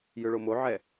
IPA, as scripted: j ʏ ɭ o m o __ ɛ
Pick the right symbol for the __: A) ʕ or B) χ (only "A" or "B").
A